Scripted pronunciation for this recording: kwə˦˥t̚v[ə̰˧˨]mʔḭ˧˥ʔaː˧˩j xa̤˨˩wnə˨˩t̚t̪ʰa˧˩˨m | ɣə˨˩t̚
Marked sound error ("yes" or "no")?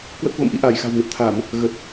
no